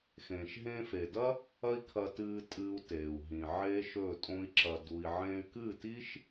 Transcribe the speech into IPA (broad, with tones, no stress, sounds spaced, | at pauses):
x ẽː˨ ʃ ɦ ẽː˧ f e˨ d ɐ˦ | ɐ˦ i̯ kʰ ɐ˧ t ɨː˧ tʼ ɨː˧ u̯ t eː˨ u̯ ɦ ĩ˨ ʕ eː˦ ʃ ɵ˦˨ tʼ õ˦ i̯ ǁ ɐ˧ d u˧ i̯ ʕ ẽ˧ y̯ k ɨ˦˨ t i˦ ʃ